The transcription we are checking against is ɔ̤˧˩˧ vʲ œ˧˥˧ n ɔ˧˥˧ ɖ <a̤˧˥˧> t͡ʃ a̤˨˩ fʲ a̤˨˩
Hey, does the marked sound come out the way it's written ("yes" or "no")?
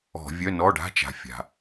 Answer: yes